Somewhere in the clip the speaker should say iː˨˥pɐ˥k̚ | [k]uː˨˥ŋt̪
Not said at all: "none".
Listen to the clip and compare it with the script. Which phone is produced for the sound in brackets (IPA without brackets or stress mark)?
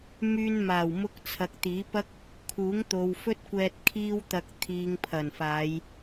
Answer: kʰ